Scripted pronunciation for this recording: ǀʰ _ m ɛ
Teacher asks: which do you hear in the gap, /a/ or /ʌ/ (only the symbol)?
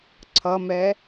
ʌ